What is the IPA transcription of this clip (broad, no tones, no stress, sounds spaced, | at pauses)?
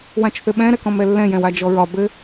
w ã t͡ʃ θ ɘ ɓ ɛ̃ ɾ ɛ k ɔ̃ m ɛ lː ɛ̃ j ɛ̃ w a d͡ʒ ɔ ɹ ɒ b ɘ